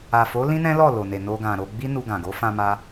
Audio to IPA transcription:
a˨ f o˨˦ l ĩ˦ n ɛ̃˦ l ɔ˦˨ l o˨ n e˨ n o˧ ɡ ã˨ ɾ o˧ ɡ͡b i˦ n u˧ ɡ ã˨ ɡ o˨˦ f ã˧ m a˧

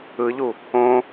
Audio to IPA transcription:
ɯ ʎ u | õ

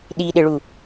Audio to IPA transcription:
ɗ i ɗ ɪ ɭ u

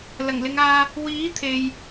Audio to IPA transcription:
l ɐ˨˩ ŋ l ɪ˨˧ ŋ aː˧ | w iː˨˥ t̪ʰ e˨ j

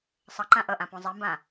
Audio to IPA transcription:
sˤ ʌ ǃ ã ʔ ʌ ʔ ã p õ zˤ ɛ m b ã

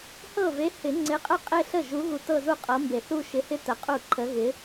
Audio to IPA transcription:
h ɤ˥˩ v e˨˥ h ɪ˨˩˦ ŋ͡ǀ ɪ˨˥ qʼ ə˥˧ qʼ e˥˧ ɬ ə˥˩ ʒ u˨˥ ɣ u˨˩˦ t ɤ˥˧ z u˥˧ qʼ ɤ˨˥ m b e˨˩˦ θ u˥˧ ʃ ɪ˨˥ h ɪ˥˧ t ə˨˩˦ qʼ u˥˩ ǃʰ ə˨˥ ɣ ɪ˨˥

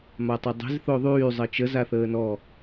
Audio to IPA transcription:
m a tˤ o dˤ e̤ z θ o ðˤ yː zˤ ə t͡ʃ ə z a θ əː n ɔ

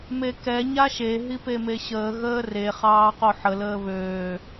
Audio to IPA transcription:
m e k ɛ ɲ a ʃ e ɦ i p e m e ɕ əː ɣ əː r e χ ɑː q o ħ ə l əː β øː

